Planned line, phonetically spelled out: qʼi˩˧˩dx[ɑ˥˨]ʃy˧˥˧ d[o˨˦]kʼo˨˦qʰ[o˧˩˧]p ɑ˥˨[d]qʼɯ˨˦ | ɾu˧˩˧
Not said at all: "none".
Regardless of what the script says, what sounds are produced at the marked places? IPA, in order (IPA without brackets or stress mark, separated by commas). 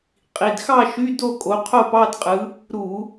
ɑ˥˨, o˥˨, o˥˨, d